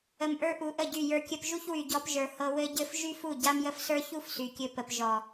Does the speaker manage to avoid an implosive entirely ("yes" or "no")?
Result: yes